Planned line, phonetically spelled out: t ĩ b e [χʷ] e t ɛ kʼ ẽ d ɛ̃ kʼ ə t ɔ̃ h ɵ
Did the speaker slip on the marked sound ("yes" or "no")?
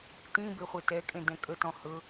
no